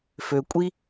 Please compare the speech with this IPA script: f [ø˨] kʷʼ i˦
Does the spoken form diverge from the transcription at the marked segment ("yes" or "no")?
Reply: no